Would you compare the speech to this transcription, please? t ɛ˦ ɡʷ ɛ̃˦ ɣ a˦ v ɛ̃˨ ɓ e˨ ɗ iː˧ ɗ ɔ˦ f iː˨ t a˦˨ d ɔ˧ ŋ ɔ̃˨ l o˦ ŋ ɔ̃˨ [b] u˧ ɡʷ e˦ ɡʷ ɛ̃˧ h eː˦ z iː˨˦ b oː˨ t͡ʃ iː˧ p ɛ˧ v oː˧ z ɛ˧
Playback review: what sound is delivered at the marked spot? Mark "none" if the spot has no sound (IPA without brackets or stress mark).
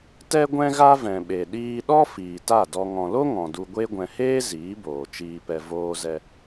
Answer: d